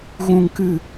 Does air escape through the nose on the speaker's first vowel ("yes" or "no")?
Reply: yes